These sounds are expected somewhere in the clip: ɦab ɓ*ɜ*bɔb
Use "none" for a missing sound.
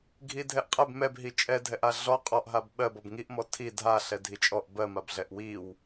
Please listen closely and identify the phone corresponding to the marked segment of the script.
ɜ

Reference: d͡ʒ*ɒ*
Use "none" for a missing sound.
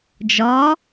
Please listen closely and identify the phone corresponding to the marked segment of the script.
ɒ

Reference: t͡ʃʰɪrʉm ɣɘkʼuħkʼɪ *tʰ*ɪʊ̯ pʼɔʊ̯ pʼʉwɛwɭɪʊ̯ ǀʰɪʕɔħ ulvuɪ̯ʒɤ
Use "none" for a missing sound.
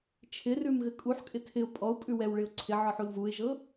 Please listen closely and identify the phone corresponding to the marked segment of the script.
tʰ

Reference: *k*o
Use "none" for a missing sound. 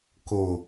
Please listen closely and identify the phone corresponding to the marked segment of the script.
k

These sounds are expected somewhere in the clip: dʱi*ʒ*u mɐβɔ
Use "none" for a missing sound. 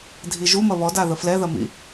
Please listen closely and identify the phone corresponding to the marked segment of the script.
ʒ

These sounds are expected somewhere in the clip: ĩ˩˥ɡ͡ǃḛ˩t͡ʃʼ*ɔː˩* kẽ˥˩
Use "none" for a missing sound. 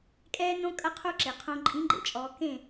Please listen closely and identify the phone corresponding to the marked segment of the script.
ɔː˩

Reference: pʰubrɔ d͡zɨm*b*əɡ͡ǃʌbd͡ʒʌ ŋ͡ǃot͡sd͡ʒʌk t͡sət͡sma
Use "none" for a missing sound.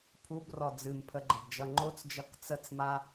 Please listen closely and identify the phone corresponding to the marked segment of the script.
pʰ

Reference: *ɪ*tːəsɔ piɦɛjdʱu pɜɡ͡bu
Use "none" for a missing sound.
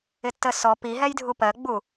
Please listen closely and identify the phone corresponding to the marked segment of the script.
ɪ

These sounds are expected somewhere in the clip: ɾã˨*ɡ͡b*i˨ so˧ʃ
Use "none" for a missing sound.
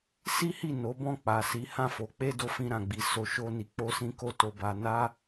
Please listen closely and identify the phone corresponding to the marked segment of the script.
ɡ͡b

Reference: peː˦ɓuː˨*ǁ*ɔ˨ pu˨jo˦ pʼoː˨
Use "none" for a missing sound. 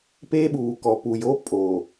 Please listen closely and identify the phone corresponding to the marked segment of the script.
k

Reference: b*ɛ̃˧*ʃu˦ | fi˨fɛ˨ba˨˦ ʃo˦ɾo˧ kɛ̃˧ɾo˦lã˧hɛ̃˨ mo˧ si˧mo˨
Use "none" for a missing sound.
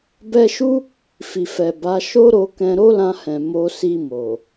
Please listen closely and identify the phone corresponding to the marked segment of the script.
ɛ˧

